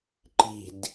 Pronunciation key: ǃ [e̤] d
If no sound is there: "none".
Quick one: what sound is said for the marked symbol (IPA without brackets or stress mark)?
i̤